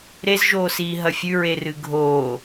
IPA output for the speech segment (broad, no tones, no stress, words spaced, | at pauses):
ɾezʒoːsiːɦɐ fʲʉɹerɨ ɡʱoː